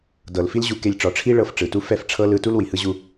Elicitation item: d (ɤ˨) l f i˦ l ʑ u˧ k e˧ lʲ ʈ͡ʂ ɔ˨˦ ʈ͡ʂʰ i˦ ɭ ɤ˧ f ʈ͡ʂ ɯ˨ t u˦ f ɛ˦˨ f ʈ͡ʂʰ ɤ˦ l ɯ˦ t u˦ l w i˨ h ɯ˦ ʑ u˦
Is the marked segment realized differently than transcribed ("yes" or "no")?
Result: no